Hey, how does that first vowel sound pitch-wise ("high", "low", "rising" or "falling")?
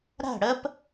falling